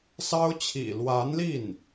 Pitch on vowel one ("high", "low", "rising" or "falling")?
high